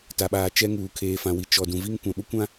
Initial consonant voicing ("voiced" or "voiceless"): voiceless